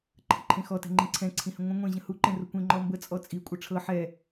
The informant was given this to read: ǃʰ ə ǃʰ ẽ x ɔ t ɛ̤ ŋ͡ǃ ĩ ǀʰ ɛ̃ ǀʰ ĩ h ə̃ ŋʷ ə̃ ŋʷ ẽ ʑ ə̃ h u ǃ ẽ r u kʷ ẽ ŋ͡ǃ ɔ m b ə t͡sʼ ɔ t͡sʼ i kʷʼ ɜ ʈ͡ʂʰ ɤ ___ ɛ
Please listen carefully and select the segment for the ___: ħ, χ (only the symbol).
ħ